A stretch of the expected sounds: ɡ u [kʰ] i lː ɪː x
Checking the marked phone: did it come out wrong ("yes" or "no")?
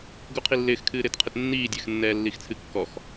yes